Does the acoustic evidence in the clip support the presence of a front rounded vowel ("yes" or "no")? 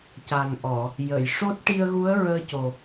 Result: no